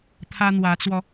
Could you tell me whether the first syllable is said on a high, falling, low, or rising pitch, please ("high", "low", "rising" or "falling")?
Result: high